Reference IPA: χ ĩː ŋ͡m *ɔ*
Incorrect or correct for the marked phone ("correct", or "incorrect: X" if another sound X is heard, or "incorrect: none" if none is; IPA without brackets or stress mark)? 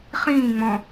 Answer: incorrect: ɔ̃